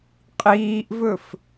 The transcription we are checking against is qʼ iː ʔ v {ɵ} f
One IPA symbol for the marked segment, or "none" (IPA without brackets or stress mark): ɵ